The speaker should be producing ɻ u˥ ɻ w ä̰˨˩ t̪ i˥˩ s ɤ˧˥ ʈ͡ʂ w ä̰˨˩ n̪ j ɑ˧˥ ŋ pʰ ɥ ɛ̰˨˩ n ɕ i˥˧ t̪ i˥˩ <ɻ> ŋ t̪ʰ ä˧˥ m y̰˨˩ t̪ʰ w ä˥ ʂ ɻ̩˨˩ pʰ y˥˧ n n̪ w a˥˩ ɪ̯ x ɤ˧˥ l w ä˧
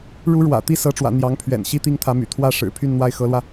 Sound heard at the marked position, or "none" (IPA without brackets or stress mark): none